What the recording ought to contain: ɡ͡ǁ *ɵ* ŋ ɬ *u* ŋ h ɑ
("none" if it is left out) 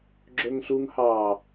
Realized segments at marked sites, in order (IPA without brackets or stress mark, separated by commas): ɵ, u